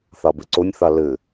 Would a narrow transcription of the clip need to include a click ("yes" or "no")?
yes